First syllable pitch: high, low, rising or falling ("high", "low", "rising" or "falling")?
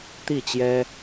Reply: falling